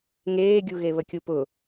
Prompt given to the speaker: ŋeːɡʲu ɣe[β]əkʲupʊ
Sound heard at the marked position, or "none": β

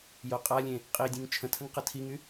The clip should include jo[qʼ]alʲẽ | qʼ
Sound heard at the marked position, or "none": qʼ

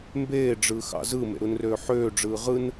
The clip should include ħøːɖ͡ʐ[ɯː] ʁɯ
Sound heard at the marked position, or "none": ɯː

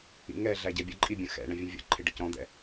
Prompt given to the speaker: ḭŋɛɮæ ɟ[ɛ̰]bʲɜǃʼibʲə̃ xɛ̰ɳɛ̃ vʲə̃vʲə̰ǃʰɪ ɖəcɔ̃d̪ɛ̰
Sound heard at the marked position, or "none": ɛ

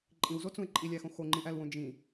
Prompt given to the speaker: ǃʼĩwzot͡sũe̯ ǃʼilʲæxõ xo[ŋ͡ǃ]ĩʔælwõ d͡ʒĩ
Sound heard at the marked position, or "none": ŋ͡ǃ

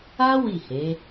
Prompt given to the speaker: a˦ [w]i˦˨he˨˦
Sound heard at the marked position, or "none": w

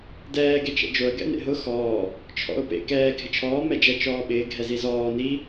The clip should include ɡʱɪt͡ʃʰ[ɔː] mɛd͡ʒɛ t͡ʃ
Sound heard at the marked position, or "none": ɔː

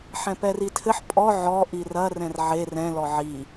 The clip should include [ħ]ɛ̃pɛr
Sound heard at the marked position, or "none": ħ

